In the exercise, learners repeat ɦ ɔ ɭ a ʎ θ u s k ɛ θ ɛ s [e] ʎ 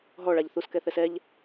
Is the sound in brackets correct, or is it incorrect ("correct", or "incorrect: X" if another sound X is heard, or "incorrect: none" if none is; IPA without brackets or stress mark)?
incorrect: ɛ